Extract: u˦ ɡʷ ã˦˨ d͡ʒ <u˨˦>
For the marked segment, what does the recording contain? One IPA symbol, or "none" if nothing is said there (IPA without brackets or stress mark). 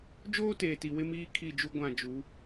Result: u˨˦